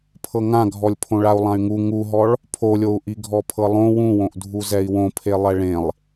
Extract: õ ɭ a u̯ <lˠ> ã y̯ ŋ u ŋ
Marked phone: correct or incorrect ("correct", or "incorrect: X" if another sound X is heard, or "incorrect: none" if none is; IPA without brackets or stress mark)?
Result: correct